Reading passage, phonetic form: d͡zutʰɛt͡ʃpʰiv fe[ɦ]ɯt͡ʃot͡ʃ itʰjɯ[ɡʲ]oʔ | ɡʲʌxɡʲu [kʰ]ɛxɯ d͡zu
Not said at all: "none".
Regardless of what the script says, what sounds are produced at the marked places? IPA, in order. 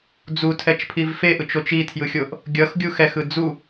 ʔ, xʲ, x

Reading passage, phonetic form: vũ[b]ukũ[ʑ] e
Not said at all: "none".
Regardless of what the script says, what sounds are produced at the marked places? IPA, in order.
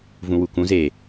w, z

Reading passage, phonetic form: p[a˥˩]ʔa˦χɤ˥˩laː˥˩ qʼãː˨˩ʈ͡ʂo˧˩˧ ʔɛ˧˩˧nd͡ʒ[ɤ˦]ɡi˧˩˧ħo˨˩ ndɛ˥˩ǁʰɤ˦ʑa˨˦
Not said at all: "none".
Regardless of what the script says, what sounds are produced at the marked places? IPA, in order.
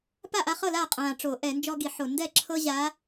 a˥˩, ɔ˦

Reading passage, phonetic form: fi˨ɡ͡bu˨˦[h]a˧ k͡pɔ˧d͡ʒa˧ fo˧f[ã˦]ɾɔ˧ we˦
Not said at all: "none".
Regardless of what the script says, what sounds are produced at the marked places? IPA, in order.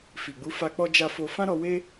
f, ã˦

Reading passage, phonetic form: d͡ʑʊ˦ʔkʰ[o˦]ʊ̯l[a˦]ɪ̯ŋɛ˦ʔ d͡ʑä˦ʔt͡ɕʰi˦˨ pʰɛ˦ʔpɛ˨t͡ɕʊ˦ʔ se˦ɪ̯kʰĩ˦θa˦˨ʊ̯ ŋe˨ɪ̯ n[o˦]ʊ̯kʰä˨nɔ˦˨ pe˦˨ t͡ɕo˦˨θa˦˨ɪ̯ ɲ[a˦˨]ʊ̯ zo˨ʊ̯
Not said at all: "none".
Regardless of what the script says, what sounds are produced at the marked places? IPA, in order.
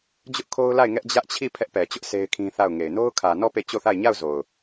o˦, a˦˨, o˦, a˦˨

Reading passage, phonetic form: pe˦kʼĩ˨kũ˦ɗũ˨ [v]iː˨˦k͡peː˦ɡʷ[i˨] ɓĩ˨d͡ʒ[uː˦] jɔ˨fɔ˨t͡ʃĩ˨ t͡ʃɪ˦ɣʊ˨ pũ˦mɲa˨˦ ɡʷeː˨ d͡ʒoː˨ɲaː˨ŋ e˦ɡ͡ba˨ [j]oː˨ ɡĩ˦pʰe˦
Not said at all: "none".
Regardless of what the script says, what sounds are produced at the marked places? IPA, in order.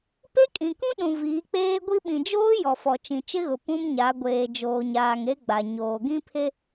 v, i˦, oː˦, ɲ

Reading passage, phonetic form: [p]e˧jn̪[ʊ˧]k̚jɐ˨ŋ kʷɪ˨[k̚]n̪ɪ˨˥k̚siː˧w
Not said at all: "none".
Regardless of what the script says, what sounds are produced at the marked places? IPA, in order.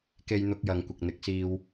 k, ʊ˧, k̚

